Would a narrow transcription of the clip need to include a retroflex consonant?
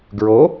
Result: no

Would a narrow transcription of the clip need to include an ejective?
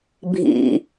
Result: no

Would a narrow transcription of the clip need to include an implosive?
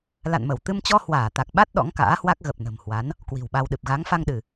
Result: yes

